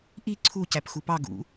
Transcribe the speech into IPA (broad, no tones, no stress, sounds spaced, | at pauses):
ʔ i ǀʰ u c æ p x u p ɑ ɡ ṵ